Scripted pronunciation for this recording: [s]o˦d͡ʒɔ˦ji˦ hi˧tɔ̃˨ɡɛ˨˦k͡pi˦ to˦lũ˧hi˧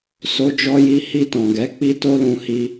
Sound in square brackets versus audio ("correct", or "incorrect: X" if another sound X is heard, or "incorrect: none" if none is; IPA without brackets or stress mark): correct